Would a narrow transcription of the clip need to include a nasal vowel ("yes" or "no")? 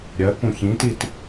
yes